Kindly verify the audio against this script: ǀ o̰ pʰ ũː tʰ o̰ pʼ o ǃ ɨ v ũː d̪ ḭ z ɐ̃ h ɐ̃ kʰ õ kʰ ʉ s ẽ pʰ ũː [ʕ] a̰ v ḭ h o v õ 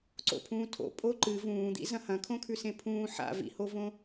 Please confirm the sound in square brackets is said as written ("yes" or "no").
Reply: no